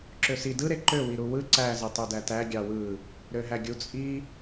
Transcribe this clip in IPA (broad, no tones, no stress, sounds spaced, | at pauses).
ǁ ø s i d ɯ ɾ e ǃ ø w i ɾ u w ɯ ǀ æ z ɯ tˤ u d æ t æ ɡʲ ɑ w ɯ | ɾ ø ɦ æ ɡʲ u t͡sʼ i